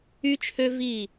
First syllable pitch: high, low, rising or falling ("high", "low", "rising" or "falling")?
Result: high